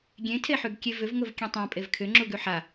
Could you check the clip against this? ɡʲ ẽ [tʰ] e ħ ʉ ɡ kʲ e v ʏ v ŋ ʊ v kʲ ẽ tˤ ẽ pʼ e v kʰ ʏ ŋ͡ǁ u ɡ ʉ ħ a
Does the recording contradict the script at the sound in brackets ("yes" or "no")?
no